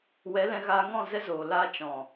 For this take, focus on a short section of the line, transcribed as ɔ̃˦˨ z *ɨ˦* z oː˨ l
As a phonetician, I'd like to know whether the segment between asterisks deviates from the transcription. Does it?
yes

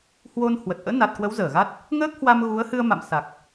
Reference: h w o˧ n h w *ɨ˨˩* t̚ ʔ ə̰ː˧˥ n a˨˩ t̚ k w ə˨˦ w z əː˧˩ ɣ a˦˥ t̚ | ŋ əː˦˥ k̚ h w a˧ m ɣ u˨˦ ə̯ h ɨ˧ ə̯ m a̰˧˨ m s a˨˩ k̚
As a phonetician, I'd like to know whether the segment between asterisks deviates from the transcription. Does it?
yes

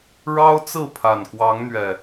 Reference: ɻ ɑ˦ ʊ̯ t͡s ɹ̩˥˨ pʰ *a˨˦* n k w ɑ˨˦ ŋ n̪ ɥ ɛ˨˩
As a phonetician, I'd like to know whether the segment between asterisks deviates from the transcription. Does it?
yes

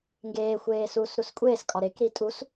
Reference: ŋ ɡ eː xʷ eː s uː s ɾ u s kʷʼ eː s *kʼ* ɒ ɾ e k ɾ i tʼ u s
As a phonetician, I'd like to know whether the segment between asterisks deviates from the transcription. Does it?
no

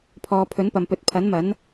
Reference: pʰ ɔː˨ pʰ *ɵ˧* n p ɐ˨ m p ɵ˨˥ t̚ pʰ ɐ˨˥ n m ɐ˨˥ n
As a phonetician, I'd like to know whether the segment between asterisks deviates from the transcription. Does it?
yes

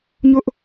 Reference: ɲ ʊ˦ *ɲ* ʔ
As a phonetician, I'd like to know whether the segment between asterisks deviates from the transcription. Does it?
yes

